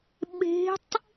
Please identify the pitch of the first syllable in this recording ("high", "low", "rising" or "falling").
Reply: rising